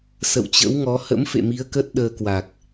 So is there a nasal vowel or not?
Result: no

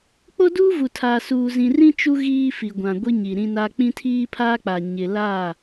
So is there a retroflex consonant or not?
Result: no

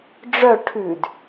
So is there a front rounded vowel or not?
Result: yes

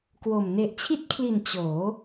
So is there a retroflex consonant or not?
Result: no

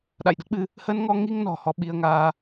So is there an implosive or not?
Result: yes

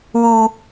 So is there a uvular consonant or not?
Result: no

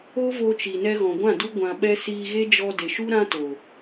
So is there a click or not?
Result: no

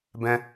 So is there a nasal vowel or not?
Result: yes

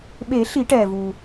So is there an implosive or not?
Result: yes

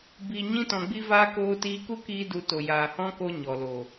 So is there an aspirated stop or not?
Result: no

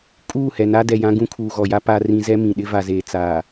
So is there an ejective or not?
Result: yes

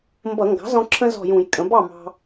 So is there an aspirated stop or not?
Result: yes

